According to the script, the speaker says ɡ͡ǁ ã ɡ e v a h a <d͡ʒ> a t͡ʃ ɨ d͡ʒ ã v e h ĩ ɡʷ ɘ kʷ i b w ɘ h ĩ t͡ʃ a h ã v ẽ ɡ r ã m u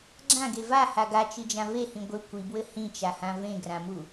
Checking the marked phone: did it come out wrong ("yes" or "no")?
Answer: yes